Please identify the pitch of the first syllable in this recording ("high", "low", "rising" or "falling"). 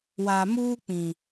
low